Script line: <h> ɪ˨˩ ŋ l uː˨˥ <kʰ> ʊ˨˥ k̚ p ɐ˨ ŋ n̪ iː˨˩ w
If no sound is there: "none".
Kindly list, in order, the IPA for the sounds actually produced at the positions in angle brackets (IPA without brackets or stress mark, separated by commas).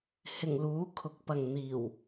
h, kʰ